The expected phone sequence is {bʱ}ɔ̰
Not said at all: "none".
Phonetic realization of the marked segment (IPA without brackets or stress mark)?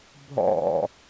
bʱ